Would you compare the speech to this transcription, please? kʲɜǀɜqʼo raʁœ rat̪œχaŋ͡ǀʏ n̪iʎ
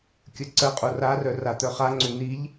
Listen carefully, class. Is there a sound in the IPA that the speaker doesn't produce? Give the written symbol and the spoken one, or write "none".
ʁ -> r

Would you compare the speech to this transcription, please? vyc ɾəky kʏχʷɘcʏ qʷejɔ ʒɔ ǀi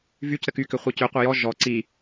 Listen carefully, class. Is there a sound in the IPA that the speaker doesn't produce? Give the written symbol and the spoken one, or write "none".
none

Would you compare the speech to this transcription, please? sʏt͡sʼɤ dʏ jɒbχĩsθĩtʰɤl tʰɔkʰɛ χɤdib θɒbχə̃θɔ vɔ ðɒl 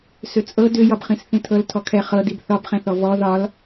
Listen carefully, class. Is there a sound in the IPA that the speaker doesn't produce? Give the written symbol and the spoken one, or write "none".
ə̃ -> ɛ̃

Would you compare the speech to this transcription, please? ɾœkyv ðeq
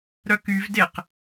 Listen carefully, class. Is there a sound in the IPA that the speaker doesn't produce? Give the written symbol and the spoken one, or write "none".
ð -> d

